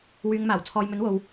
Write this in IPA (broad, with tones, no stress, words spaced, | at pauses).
wyː˧ŋ maː˨˩wt͡sʰɔː˨jmɵ˨˥n wo˨w